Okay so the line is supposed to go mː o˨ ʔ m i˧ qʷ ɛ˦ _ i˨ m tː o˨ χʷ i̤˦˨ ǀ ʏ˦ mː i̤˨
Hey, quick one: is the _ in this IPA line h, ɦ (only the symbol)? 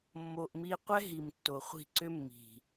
ɦ